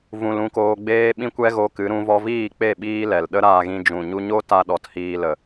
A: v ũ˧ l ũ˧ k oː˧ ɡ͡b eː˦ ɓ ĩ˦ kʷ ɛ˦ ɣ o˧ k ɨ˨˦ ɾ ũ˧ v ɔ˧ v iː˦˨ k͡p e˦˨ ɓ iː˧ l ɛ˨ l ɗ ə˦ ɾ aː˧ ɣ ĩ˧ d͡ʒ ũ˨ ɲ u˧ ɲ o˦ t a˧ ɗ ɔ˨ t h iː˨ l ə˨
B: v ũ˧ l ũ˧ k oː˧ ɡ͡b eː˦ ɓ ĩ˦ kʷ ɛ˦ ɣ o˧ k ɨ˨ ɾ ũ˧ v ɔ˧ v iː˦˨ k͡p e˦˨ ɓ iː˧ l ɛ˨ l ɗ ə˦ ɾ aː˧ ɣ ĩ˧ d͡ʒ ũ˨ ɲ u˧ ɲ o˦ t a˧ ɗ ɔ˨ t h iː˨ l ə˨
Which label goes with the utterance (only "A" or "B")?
A